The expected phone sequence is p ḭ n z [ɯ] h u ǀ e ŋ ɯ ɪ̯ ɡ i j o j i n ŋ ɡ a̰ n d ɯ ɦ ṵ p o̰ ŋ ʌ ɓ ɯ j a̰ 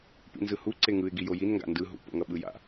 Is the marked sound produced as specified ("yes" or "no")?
yes